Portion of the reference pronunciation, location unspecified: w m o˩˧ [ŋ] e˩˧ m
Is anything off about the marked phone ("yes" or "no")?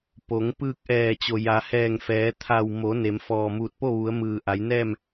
yes